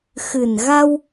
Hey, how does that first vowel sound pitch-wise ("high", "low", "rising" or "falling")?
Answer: low